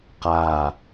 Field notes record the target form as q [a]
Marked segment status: correct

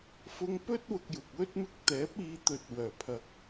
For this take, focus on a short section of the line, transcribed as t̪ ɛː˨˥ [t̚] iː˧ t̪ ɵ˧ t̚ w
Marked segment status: incorrect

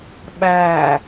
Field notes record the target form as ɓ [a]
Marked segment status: incorrect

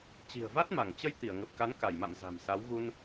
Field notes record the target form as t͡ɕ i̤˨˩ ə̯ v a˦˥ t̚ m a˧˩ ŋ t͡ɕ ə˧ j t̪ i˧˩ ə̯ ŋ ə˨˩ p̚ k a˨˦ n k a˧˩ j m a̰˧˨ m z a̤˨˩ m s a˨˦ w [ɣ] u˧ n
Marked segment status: correct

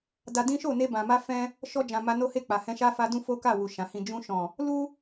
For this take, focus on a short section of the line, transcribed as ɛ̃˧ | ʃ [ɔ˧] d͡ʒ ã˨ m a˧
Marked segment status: correct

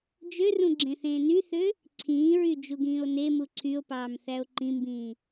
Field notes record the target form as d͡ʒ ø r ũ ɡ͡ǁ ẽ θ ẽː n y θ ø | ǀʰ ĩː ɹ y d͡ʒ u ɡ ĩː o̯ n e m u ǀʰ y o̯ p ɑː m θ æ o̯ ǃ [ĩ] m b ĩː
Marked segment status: correct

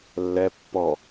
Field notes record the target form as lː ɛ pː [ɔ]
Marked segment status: correct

